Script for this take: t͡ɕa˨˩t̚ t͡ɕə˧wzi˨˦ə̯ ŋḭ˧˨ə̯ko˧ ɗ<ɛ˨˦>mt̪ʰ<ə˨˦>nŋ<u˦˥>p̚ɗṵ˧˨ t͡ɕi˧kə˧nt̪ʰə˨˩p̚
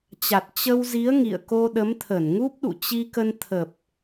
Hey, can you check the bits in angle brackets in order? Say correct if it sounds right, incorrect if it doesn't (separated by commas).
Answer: incorrect, incorrect, correct